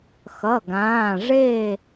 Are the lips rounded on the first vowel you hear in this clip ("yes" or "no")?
no